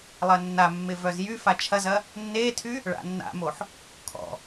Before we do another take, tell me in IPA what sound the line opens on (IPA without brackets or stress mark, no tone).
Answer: lˠ